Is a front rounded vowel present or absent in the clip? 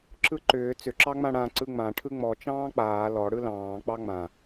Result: present